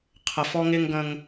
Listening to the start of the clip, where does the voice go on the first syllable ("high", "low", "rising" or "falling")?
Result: low